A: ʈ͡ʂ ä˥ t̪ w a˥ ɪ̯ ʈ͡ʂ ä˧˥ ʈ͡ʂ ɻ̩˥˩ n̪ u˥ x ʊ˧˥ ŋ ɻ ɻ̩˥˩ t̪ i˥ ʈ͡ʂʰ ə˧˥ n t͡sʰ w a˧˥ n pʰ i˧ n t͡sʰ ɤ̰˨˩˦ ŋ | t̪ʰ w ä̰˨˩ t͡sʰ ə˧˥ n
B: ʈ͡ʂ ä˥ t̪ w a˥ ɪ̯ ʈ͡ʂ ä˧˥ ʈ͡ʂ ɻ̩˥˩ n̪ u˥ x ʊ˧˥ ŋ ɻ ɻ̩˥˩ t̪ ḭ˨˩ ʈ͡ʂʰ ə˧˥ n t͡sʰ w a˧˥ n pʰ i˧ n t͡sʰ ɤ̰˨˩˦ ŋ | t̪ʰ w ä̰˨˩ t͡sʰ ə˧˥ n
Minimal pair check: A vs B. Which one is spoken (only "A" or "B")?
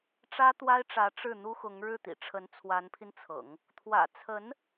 B